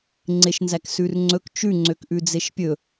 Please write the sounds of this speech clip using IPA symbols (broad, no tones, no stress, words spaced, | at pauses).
ŋ͡ǀeʃnzæksʉrŋ͡ǀɵk t͡ʃʉ ŋ͡ǀøkʔʉd͡zeʃpʲɵ